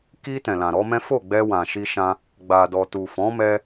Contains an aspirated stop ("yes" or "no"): no